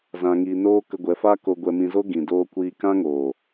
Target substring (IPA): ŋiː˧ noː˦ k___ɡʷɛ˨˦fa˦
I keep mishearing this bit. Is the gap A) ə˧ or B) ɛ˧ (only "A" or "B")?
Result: A